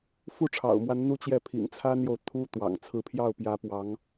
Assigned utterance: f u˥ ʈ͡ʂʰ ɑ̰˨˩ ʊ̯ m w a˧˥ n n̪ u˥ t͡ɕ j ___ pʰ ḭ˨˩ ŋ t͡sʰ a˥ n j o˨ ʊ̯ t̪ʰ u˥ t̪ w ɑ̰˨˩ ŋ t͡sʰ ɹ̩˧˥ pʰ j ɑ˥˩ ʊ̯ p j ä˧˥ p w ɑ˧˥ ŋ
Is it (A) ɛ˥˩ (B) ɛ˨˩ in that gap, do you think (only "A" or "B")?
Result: A